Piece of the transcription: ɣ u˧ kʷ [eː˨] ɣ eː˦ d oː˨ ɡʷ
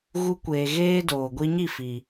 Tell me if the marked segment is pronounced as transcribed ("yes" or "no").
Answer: yes